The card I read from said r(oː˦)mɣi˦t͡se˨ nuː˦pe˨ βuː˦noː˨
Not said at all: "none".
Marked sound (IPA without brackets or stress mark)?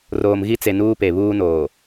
oː˨